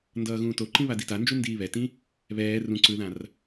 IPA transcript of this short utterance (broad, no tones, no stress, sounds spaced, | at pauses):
n d ʌː ɣ ũː t o ǃ ĩ β a d i t a n d͡ʒ u n d iː β ɛ t ĩ | β ɛː r ũ ǀ ɯ ð ã r